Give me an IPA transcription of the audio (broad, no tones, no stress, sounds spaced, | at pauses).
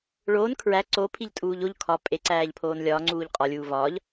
ɭ oː n kʰ ɹ æ ǀ o pʰ i ʎ tʼ uː ʎ o ʎ kʰ ɒ pʼ e ǀ æː ʎ pʰ oː n lʲ ɒː ŋ͡ǀ uː ʎ qʼ ɒ lʲ uː v ɒː ʎ